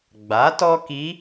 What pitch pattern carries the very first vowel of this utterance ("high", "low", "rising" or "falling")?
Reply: rising